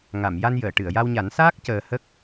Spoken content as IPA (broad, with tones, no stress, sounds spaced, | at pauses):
ŋ a˨˩˨ m j a˧ n j əː˨˩˨ ʈ ɨ˨˩˨ ə̯ j a˧ w ɲ a˨˩˦ n s aː˦˥ k̚ c əː˧ h ə˦˥ k̚